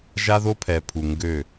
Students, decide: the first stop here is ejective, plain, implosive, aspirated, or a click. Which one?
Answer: aspirated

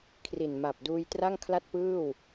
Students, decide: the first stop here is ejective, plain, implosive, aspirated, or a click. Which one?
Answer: aspirated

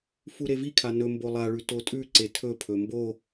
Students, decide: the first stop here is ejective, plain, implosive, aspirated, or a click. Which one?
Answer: aspirated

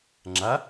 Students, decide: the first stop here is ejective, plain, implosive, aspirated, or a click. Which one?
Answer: click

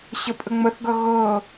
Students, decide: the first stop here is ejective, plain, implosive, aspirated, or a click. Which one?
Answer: ejective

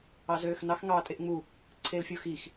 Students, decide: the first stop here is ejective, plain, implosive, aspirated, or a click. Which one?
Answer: ejective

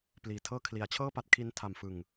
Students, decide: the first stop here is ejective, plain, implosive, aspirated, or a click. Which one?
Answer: plain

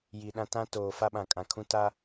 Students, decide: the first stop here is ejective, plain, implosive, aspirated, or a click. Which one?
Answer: implosive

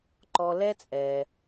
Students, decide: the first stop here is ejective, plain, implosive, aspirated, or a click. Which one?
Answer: click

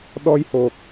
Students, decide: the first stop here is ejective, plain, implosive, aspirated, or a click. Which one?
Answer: implosive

